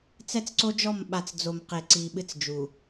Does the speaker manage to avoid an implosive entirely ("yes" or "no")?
no